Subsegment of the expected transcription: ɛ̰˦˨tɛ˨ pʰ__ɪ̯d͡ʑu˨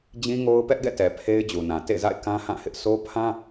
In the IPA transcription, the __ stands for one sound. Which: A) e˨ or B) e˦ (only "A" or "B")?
B